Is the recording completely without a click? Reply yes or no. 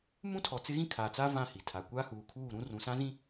yes